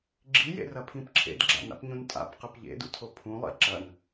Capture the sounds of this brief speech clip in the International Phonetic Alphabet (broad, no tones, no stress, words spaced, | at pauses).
ɡ͡ǁijḛrɐpʰĩp ǁʰḛdɡ͡ǁa̰na̰pɲũn tʼa̰pqɨp ʎḛdṵtʰo pʰũlˠḭ ǁɐn